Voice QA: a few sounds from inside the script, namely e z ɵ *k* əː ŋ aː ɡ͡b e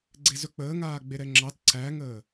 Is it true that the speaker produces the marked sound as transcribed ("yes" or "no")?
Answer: no